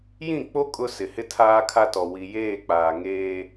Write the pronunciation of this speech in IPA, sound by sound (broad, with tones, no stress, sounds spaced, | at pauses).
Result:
j ĩ˦˨ k͡p o˦ kʼ ʊ˦ s ɪ˨ h ɪ˦ tʰ aː˦ kʰ a˦ t ɔ˨ w i˨ j eː˦˨ k͡p aː˨ ŋ eː˦